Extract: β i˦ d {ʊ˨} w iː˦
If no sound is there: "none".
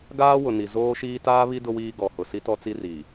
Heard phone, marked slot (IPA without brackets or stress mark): ʊ˦